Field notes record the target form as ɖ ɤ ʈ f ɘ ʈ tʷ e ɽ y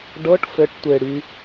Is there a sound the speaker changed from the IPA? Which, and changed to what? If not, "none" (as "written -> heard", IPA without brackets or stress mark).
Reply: none